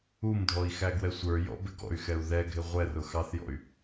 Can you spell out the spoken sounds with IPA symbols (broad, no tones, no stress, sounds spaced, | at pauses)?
u m dʱ ɔ i̯ x æ ɡ w ɛ sʷ ə˞ j ɔ̰ b ɪ ɡ ɔ̰ y̯ x ɛ u̯ ð ɛ ɡʱ ɪ ʁʷ ɛ r ʊ x ɑ θ j ɔ̰ y̯